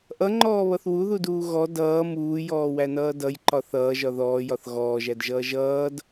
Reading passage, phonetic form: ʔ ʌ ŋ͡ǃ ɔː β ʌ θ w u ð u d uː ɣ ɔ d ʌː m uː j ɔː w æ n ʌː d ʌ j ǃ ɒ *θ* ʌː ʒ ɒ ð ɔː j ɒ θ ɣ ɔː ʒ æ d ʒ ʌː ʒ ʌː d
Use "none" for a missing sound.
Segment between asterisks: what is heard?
θ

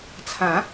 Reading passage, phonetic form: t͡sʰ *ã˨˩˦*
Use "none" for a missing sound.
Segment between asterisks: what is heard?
ã˨˩˦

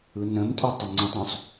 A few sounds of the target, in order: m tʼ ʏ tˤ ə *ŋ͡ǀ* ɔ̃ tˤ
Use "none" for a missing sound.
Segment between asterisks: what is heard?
ŋ͡ǀ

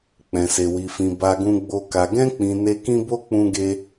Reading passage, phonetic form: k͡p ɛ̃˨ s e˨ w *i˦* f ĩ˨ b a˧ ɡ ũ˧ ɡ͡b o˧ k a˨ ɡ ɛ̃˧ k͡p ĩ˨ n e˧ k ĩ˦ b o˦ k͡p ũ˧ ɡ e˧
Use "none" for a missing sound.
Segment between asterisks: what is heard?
i˨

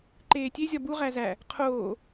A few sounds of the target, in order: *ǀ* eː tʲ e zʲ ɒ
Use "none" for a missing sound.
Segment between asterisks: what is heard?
ǃ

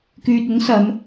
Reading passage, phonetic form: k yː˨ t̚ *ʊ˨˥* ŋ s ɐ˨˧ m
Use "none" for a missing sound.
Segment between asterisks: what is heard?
ʊ˨˥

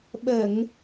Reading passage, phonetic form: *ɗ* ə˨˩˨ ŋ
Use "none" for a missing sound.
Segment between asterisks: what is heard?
ɓ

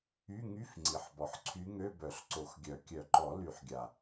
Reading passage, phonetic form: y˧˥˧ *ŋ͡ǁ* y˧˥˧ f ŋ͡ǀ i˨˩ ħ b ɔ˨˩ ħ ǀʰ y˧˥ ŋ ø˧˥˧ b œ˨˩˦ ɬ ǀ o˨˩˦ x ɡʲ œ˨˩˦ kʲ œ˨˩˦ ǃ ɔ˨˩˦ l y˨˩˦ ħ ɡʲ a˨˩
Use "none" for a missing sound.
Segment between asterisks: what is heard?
ŋ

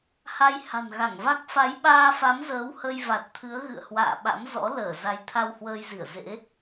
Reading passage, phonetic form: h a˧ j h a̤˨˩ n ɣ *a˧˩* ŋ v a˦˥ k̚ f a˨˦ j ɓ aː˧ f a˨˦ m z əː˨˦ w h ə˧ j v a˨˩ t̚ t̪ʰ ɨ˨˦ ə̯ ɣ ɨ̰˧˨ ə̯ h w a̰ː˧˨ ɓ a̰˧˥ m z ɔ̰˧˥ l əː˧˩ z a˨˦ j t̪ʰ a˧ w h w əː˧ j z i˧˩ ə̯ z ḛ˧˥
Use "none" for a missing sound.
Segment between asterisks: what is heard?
a˧˩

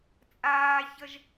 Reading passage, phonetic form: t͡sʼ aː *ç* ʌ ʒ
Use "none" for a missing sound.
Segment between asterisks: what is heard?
ç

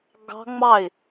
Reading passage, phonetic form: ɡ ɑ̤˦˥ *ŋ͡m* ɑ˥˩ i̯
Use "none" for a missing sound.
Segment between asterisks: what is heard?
ŋ͡m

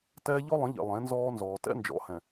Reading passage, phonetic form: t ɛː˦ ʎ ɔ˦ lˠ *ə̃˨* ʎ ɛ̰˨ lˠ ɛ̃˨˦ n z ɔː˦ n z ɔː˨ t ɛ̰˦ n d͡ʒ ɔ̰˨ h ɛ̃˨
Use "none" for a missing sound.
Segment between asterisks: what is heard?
ə̃˨˦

